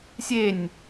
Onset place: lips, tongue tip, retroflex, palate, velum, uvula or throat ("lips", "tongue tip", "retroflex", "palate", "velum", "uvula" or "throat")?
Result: tongue tip